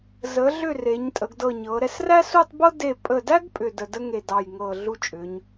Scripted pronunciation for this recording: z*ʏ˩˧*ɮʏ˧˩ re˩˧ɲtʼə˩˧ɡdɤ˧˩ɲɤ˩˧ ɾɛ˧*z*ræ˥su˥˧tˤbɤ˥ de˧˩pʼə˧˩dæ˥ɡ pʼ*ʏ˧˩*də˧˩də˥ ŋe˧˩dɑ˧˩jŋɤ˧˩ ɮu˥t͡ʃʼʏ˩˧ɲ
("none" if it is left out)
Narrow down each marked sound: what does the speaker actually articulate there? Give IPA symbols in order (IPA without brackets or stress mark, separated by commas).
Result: ə˩˧, s, ʏ˧˩